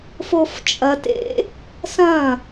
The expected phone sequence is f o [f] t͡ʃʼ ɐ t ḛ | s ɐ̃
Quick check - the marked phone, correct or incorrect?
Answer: correct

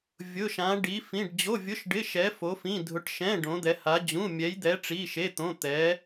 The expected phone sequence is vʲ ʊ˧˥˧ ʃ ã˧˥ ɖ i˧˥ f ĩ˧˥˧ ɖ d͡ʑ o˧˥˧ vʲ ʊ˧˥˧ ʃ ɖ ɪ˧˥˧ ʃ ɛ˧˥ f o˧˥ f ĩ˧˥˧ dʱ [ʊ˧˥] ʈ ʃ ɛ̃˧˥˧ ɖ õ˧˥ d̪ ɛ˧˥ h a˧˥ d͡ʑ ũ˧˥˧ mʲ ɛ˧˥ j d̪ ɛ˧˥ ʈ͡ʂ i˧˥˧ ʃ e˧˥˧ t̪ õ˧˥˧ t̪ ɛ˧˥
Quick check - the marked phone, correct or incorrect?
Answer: correct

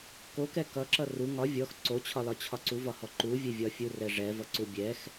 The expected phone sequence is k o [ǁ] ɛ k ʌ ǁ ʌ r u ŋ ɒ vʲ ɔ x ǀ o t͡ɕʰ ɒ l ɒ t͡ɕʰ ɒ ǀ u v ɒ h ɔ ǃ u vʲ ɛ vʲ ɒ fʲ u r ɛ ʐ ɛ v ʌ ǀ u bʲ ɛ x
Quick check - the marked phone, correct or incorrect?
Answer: incorrect: k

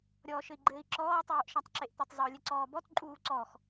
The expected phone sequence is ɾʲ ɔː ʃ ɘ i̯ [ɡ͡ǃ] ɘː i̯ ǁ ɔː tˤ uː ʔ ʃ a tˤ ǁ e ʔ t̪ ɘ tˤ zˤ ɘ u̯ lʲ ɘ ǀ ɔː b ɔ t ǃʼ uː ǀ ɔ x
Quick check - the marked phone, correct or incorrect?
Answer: correct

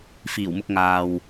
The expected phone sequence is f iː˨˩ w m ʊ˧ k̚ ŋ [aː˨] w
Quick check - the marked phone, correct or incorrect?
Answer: correct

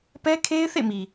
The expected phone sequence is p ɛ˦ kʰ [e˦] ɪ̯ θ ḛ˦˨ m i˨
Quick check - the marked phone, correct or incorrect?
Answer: correct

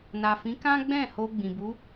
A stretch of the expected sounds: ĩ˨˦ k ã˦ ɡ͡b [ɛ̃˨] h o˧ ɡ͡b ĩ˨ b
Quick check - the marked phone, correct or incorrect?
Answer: incorrect: ɛ̃˦˨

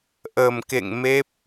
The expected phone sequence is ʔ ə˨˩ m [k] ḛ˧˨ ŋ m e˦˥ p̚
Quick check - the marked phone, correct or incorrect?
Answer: correct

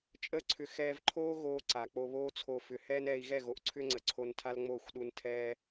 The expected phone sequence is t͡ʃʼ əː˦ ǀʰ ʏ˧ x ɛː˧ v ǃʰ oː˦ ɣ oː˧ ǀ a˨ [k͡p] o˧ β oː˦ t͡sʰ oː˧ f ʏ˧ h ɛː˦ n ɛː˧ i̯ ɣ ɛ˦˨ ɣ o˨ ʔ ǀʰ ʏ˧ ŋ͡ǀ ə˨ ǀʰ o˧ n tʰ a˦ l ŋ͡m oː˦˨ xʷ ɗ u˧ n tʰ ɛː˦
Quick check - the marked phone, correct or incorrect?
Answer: correct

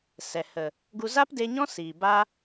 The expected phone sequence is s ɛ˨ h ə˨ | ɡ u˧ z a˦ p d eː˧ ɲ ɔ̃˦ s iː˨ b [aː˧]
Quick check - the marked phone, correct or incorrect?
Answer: correct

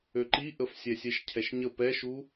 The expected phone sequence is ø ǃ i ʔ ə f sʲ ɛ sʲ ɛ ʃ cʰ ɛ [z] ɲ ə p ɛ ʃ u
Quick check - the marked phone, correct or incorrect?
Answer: incorrect: ʃ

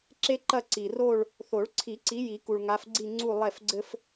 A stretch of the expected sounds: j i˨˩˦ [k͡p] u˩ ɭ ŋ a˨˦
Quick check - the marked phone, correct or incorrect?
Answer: incorrect: k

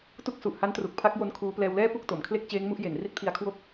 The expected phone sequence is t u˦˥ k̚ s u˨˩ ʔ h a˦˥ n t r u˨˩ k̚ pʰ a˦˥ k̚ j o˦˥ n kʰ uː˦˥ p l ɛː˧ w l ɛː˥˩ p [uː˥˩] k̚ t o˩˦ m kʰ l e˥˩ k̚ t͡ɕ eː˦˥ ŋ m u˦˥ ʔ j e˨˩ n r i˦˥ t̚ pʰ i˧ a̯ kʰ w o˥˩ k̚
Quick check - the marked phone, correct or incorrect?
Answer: incorrect: u˥˩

